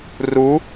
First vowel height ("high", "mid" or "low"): high